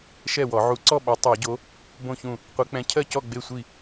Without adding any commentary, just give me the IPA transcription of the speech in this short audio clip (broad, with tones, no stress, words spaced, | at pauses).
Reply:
ʃɛ˥˩wɔ˧˩˧ ʕu˨˦ǀɔ˥˩ɓɔ˨˦ tˤɛ˧˩˧ɟo˨˦ | bõ˥˩çũ˥˩ | qʷe˨˦k͡pɛ̃˨˦ cʰɜ˥˩cɔ˥˩ ɡ͡be˥˩sʷi˥˩